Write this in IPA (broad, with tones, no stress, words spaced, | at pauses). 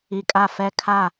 i˨kʼa˦˨ fɛ˦kʰa˦˨